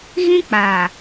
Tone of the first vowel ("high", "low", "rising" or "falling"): high